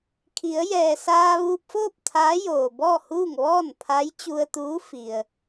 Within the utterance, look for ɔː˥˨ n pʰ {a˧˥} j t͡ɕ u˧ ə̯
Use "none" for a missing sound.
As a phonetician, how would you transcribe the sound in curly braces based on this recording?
a˧˥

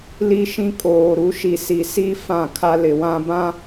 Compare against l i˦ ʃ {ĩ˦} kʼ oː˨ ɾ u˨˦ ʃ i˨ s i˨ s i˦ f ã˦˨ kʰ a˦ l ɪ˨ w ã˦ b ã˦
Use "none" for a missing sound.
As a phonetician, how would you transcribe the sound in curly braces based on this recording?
ĩ˦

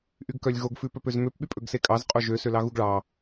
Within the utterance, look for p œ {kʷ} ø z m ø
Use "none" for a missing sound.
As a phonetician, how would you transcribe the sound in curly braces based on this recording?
p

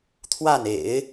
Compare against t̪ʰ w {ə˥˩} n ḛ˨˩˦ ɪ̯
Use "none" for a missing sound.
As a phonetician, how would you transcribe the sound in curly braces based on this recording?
a˥˩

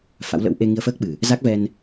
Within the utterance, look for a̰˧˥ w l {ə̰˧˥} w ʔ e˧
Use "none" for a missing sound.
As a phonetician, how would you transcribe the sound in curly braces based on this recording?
ə̰˧˥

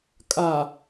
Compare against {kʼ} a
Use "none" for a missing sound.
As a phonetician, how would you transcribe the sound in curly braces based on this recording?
kʼ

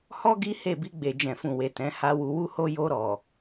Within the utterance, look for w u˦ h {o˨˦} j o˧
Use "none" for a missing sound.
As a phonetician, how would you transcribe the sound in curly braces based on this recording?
o˦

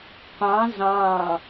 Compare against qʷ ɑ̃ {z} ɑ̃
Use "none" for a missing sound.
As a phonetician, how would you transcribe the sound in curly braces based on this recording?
z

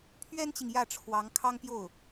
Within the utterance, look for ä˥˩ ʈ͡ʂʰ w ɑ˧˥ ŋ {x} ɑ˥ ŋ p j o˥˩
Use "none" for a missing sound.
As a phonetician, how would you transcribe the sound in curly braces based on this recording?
kʰ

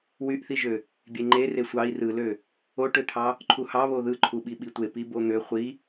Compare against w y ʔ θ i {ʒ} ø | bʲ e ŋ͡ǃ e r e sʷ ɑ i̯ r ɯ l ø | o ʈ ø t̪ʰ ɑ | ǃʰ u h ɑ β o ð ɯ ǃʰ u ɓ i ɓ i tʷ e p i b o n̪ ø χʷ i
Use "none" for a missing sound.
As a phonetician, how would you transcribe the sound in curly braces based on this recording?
ʒ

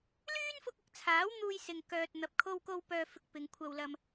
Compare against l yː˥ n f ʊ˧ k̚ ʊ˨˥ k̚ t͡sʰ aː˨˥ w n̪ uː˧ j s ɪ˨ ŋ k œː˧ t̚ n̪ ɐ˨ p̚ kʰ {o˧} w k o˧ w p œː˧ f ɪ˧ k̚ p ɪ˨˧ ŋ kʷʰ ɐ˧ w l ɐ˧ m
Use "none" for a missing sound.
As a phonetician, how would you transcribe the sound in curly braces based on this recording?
o˧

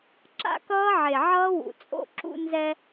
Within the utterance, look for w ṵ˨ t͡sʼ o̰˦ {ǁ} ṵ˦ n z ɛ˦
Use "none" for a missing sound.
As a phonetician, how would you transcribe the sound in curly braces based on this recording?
ǁ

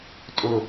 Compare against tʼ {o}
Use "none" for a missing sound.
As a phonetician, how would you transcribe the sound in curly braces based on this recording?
ɵ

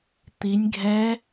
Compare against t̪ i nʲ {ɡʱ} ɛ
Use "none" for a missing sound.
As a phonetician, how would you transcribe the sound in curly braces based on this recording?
ɡʱ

